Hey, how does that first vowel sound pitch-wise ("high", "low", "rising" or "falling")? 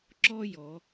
high